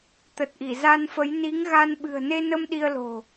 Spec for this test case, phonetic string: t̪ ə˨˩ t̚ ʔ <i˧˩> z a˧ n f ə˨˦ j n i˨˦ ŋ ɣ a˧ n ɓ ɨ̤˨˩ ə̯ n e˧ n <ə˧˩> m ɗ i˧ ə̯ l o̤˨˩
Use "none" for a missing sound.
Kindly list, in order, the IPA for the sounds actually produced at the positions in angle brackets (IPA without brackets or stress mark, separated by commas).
i˧˩, ə˧